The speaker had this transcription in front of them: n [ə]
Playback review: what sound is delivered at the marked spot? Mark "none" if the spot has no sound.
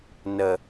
ə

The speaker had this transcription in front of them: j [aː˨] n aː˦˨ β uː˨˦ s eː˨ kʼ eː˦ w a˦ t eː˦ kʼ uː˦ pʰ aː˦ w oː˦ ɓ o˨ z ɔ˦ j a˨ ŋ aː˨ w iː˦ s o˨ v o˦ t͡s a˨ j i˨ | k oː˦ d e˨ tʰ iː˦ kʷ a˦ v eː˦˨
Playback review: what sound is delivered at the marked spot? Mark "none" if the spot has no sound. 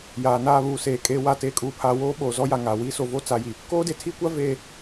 aː˨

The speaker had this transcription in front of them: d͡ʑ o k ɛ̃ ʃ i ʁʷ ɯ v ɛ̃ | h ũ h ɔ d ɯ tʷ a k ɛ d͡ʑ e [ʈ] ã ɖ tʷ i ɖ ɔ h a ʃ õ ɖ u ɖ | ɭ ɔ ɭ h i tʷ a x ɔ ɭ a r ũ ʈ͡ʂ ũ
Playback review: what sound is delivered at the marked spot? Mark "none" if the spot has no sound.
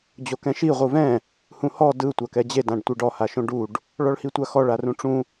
d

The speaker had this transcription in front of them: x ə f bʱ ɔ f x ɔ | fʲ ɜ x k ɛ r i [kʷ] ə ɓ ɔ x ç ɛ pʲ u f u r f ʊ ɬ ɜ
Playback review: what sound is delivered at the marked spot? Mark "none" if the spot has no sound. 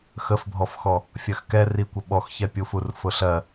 kʷ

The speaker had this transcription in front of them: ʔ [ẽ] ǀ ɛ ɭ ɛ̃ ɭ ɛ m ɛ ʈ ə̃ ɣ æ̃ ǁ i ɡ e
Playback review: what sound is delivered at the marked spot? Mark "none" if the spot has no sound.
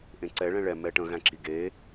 ẽ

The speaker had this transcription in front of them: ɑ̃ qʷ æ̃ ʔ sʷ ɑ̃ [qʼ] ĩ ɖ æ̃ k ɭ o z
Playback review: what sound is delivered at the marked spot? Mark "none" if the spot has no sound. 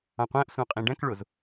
qʼ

